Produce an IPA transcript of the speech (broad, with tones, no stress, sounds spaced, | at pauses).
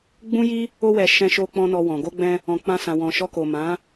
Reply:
ɡ͡b ũ˦ j i˦ | o˧ w ɛ˨ ʃ ɛ̃˧ ʃ o˧ k͡p ɔ̃˧ n ɔ˧ w ɔ̃˨ ɡ o˧ ɡ͡b ɛ̃˧ | ɔ̃˨ k͡p ã˧ s ã˨ w ɔ̃˨ ʃ ɔ˧ k o˨ m ã˨˦